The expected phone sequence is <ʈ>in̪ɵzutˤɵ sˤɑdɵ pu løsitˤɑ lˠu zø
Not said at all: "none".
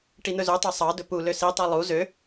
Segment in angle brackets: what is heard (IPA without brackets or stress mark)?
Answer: ʈ